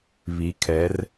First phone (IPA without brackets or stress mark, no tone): β